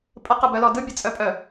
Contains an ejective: yes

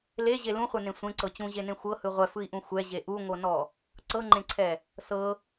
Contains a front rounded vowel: no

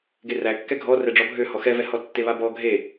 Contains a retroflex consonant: yes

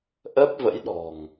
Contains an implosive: yes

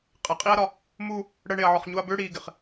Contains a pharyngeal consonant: yes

